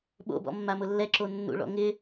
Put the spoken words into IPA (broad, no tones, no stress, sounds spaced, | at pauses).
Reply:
ɓ o̰ b ɔ̰ mː a m ʊ lː ɛ ǁ o nː ṵ ɭ ɔ̰ ŋ ɪ